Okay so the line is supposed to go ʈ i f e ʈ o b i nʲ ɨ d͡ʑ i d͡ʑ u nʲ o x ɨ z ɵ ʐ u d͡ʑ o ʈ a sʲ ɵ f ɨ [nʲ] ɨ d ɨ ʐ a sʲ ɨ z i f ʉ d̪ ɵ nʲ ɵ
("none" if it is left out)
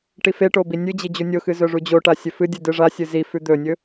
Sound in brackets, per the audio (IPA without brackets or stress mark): dʲ